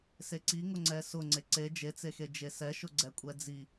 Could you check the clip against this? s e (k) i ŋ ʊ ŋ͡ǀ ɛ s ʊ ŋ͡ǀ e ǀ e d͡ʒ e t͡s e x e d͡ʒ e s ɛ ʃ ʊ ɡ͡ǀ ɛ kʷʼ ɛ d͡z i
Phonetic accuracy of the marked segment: incorrect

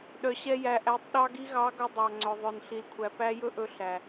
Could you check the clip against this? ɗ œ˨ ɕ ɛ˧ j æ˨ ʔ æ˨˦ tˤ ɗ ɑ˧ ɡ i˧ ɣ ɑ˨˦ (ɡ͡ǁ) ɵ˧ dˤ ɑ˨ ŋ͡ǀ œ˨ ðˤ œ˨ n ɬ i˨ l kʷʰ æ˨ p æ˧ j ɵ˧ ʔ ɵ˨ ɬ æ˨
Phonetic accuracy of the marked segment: incorrect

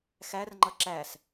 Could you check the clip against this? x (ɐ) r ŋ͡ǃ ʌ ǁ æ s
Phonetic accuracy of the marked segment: incorrect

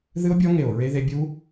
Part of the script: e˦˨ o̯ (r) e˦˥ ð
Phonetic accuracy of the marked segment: incorrect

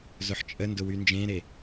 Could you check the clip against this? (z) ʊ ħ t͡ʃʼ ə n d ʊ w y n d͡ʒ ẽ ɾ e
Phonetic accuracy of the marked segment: correct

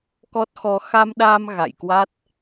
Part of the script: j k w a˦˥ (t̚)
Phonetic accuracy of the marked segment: correct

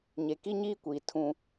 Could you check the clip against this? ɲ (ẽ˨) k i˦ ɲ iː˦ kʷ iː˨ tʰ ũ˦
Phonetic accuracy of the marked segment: incorrect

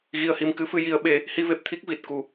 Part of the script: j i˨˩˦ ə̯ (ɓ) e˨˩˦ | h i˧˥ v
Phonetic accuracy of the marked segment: correct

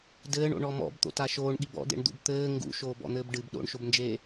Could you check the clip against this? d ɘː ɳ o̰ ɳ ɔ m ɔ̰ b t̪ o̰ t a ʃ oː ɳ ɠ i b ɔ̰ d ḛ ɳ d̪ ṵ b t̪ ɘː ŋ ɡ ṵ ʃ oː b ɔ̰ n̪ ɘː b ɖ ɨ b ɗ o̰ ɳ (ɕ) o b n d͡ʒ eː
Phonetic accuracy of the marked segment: incorrect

